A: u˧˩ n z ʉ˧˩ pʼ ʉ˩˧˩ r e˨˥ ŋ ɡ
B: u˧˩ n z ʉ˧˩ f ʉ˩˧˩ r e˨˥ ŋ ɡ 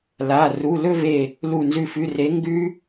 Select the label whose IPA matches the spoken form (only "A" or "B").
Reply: B